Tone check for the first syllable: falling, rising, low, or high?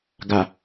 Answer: low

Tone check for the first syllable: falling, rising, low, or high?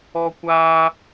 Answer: high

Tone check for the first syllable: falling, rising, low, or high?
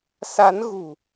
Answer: rising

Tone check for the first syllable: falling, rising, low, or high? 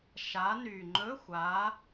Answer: rising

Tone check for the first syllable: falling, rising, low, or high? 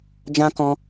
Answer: high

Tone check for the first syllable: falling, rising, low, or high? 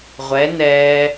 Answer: rising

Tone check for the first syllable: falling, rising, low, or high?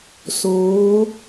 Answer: rising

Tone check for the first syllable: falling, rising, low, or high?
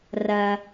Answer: high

